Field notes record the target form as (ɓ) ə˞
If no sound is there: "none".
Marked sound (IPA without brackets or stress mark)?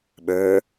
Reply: ɓ